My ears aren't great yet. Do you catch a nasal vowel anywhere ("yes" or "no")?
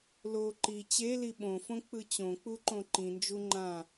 yes